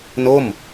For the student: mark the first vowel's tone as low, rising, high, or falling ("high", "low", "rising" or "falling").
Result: falling